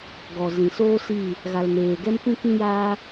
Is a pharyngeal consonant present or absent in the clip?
absent